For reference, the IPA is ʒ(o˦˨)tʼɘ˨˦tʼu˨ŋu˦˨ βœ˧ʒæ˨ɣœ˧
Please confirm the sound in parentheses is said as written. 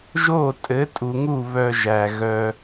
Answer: yes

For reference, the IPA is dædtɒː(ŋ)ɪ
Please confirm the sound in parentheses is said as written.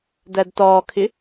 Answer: no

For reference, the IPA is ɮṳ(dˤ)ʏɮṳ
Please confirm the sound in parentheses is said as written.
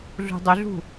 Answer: yes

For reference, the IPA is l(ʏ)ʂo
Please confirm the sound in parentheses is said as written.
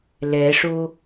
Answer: no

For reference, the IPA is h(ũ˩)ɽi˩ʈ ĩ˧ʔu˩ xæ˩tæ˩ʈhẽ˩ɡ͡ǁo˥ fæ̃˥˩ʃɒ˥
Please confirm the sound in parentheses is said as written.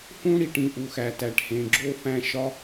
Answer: no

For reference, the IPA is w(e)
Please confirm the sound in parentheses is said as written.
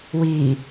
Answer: no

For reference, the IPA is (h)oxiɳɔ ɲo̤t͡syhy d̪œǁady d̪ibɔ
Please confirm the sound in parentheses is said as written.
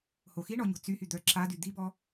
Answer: yes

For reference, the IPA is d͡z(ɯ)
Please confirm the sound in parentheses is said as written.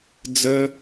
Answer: no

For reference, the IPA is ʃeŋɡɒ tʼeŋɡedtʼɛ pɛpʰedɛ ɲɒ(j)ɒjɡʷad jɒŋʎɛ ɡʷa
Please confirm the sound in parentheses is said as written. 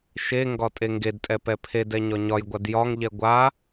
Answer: no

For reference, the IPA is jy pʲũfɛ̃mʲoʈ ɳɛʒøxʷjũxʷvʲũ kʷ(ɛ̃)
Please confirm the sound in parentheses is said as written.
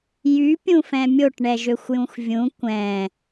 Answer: yes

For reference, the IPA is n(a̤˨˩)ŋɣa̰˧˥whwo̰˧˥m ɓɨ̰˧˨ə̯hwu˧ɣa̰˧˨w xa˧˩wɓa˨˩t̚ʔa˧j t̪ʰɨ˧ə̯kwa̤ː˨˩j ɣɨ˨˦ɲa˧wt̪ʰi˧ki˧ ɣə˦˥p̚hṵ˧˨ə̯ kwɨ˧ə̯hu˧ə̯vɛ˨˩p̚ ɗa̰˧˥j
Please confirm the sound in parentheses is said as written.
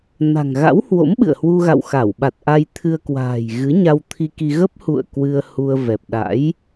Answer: yes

